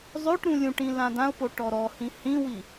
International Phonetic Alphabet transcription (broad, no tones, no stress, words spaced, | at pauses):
zˤøʈ ɾũlʲũʈĩ lãdãʊ̯po ʈɔɾɔhĩ hĩwi